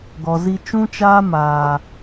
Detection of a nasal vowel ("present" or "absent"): present